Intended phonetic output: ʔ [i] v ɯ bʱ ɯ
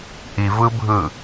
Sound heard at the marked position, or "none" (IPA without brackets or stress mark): i